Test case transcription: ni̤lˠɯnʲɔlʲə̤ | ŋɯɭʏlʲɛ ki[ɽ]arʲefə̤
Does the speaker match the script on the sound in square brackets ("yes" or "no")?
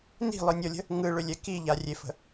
no